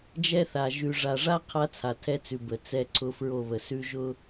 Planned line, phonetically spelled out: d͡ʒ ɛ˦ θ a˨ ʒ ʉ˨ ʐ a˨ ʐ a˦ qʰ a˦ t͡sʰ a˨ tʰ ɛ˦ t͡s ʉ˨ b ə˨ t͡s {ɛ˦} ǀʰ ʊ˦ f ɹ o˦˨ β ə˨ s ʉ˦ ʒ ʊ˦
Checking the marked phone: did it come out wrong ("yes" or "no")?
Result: no